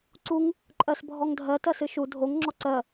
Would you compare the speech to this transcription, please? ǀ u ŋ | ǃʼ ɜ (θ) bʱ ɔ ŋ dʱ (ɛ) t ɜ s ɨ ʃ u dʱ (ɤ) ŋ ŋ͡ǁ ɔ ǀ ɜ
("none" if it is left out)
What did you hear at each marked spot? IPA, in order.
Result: s, ɜ, o

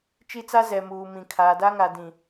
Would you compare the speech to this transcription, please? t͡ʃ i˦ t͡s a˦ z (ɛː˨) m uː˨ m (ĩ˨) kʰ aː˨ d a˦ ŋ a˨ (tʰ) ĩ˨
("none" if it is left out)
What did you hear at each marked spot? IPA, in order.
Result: ɛ˨, ĩ˨, d

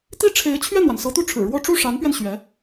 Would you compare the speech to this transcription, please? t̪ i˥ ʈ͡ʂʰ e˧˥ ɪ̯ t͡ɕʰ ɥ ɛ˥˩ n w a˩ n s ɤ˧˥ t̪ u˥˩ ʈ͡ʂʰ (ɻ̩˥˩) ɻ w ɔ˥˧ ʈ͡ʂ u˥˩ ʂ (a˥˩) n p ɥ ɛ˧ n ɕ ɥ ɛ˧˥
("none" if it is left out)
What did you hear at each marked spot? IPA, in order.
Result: ɻ̩˨˩, a˧˥

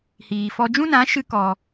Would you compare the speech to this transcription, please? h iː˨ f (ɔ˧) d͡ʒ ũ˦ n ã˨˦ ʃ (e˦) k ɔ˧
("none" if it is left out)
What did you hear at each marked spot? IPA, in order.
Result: ɔ˧, ɨ˦

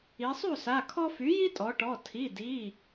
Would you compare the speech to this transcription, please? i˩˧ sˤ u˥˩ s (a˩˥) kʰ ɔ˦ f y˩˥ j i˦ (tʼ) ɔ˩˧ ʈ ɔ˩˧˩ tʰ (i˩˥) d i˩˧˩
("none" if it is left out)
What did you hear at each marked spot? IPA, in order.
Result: a˩˧˩, tʼ, i˩˧˩

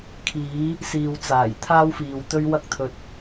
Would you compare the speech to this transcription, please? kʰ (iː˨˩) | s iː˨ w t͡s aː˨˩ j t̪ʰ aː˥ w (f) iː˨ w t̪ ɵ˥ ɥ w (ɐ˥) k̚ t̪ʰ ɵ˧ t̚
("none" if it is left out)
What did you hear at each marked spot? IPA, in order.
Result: iː˨˥, f, ɐ˥

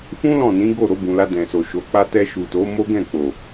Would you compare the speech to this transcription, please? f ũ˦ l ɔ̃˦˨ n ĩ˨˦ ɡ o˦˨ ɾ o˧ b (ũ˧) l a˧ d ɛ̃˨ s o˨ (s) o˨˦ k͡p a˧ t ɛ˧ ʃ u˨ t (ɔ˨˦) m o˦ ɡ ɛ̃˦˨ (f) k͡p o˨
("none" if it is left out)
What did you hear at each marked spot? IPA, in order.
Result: ũ˨, ʃ, o˨˦, none

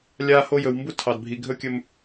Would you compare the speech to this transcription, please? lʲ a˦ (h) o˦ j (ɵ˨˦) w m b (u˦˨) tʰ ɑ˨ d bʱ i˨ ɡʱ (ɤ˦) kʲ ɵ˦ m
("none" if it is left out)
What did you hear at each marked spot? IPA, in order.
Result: h, ɵ˨, u˦, ɵ˦

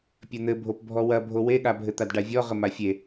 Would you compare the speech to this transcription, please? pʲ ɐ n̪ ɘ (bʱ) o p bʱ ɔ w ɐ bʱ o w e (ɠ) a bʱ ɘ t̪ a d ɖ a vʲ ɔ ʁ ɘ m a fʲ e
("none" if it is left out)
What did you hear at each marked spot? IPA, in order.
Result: bʱ, ɠ

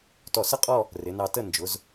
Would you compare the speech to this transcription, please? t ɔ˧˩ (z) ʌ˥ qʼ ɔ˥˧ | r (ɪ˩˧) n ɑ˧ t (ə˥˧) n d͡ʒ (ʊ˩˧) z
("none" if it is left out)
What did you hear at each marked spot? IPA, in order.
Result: s, ɪ˩˧, ə˥˧, ʊ˩˧

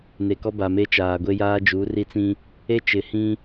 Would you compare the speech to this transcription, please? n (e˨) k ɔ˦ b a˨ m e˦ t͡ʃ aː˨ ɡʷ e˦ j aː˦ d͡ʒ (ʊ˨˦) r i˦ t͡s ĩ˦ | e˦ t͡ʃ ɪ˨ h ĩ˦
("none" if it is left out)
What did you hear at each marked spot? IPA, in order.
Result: e˨, u˨˦

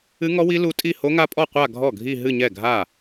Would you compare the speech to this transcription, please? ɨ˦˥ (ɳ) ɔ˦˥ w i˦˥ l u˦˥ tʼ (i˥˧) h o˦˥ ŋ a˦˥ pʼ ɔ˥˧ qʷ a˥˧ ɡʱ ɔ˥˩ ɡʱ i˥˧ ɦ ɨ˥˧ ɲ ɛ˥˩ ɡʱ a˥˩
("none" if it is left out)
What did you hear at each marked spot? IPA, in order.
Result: ŋ, i˥˧

